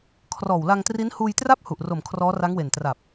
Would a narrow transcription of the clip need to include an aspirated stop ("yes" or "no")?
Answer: yes